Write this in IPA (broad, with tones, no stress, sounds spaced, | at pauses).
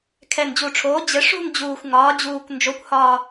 kʰ ɛ˨˩ n d͡ʑ u˨˩ ʈ͡ʂʰ oː˩˧ d͡ʑ ɘ˩˧ ʂ ṳ˦˨ n d͡ʑ uː˨˩ xʷ ŋ ɒː˩˧ d͡ʑ uː˨˩ kʷ n d͡ʒ o˩˧ kʷ h ɒː˨˩